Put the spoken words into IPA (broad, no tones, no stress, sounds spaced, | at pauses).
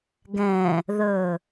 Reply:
ɡ ɛ̃ | ð ɵ